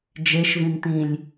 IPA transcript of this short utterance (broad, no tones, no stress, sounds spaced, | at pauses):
d͡ʒ e ʃ v ĩ n t̪ ĩ lʲ